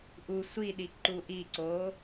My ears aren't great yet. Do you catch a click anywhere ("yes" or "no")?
yes